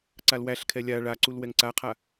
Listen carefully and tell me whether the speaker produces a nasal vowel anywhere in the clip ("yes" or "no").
no